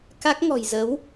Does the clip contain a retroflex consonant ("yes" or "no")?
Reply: no